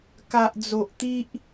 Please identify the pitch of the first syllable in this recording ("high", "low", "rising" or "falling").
low